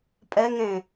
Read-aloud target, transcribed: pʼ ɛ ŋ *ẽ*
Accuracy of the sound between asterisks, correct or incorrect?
correct